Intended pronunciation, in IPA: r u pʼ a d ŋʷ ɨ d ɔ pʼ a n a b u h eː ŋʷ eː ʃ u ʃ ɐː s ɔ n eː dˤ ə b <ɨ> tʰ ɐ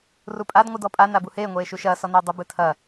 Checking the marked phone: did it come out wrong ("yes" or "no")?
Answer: no